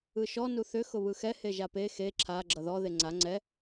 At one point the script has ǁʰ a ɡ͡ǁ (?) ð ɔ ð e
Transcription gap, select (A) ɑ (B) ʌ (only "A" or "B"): B